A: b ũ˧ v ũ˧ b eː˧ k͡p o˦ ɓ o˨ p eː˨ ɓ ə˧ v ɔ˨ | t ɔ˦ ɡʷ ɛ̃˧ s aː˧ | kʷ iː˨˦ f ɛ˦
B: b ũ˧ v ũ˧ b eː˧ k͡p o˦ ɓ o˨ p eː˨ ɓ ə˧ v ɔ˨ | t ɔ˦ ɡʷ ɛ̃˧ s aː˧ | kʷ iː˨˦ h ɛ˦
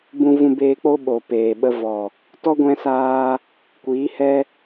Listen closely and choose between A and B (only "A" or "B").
B